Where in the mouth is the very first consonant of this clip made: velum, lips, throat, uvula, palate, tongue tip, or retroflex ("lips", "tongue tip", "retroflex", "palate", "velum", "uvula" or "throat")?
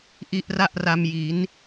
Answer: throat